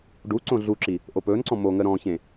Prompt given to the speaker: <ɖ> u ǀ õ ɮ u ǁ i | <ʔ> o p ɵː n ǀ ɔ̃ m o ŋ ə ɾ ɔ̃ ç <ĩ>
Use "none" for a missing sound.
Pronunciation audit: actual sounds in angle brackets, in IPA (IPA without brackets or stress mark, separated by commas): ɖ, ʔ, ẽ